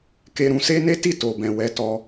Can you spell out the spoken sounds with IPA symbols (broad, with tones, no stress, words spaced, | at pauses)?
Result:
ke˧ɾũ˧se˦ ne˦ti˦˨ to˨bɛ̃˨ wɛ˨˦tɔ˧